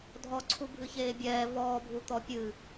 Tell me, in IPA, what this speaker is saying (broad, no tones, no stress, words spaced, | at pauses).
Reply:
dʱɔǀʰu bʱɨçeːbʲɛː vɔːbʱut̪ɔ pʲɨ